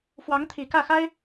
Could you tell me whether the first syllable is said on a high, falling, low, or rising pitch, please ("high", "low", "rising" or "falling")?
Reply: rising